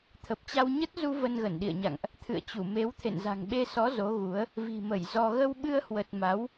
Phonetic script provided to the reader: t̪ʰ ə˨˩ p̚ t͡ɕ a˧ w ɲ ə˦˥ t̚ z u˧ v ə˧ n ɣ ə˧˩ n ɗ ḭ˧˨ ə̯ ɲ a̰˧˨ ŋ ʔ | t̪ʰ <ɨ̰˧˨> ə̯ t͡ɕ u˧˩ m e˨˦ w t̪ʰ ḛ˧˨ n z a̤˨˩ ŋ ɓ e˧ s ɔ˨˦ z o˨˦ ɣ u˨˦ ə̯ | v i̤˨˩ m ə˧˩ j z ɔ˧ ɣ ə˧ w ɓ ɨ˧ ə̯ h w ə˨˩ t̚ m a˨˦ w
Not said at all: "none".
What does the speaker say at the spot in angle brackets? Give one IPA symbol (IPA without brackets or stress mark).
ɨ̰˧˨